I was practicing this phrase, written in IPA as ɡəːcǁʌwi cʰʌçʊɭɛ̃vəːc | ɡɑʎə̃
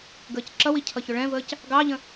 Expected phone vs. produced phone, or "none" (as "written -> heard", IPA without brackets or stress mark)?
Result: none